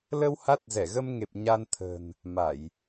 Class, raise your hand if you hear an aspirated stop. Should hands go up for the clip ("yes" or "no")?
yes